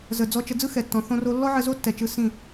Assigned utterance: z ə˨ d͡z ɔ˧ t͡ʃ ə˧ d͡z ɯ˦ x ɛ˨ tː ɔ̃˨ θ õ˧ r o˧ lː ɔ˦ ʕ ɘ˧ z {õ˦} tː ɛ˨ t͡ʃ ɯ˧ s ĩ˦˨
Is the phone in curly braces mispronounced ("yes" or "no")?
yes